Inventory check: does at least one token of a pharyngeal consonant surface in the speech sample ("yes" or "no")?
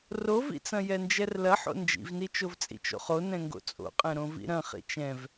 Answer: yes